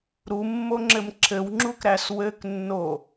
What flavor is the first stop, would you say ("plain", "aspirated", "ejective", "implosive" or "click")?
click